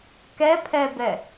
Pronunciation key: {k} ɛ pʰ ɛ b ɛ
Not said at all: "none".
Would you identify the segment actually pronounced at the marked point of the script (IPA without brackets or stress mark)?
k